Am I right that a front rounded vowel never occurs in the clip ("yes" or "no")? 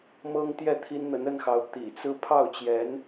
yes